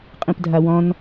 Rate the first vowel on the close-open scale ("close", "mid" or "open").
close